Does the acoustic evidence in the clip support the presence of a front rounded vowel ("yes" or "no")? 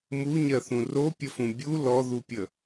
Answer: no